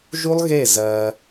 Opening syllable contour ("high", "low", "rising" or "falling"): high